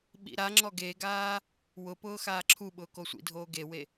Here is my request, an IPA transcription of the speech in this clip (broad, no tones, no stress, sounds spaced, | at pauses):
ɓ ḭ ɾ a ŋ͡ǁ ɔ ɡ e ɡ aː | w ʊ p ʊː x aː ǁʰ u ɓ ʊː k o sʷ ḭ dʱ oː ɡ e w e